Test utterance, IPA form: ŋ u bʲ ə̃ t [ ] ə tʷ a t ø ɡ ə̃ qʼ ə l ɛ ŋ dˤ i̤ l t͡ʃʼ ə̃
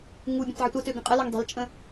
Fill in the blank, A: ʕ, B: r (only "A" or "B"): A